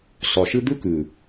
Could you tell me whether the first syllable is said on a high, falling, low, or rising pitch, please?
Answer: low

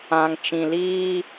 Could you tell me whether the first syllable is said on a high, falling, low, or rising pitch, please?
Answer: low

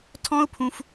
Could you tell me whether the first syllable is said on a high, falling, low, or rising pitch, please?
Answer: high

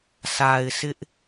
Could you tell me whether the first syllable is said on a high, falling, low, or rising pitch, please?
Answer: low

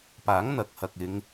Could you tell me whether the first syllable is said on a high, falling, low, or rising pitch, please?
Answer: rising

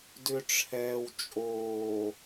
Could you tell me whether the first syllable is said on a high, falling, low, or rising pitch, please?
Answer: low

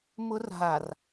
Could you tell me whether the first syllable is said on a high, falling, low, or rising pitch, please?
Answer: high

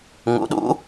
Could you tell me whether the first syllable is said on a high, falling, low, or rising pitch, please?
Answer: rising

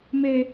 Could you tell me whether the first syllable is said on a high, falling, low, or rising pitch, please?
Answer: high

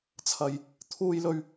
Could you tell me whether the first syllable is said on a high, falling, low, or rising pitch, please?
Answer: low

